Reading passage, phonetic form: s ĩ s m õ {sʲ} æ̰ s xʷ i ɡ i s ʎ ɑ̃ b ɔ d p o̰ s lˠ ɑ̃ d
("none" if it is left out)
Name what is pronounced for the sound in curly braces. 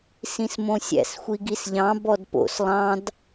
sʲ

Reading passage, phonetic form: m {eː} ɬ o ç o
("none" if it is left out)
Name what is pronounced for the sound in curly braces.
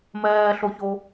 ɛː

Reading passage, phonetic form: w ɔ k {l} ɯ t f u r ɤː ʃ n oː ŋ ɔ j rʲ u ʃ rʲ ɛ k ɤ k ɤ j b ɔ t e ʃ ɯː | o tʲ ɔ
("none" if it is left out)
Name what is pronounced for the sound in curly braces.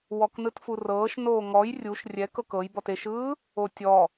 n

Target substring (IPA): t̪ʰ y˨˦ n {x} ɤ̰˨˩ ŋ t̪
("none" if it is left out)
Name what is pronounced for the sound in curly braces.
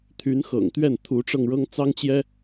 x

